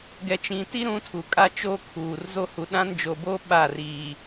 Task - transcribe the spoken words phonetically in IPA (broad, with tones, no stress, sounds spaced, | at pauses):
ɡ ɛ˨ t͡ʃ ĩ˨ t i˦ ɾ ũ˦ tʰ u˨ kʼ a˦ t͡ʃ oː˦ kʰ uː˨ r z o˦ h u˨ ɗ ã˦ n d͡ʒ o˨ b o˦ ɓ a˦˨ r iː˨